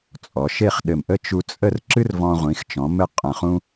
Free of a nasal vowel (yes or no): no